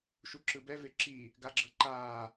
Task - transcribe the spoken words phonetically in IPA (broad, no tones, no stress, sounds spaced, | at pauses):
ʃ u ǁ ɯ b ɛ v e ǁ i | ɡ a ɡ͡ǁ ɤ ǃ aː